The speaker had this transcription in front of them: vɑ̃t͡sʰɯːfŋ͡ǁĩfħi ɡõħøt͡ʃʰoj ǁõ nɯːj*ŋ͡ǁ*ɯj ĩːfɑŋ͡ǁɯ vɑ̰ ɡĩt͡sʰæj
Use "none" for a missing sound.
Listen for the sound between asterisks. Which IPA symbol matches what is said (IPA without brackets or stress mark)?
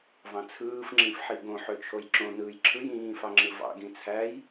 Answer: ǁʰ